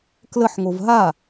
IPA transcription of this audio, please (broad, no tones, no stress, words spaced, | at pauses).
kləħŋov ɦa